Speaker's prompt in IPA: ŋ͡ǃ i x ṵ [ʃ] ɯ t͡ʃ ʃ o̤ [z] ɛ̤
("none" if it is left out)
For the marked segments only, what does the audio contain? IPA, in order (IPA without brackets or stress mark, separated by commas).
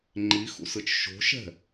s, ʃ